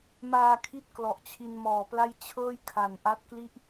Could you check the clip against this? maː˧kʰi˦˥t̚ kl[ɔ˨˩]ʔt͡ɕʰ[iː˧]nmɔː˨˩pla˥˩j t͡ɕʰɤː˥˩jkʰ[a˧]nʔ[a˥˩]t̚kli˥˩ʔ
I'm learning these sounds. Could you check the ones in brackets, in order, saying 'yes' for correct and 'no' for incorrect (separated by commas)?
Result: yes, no, no, no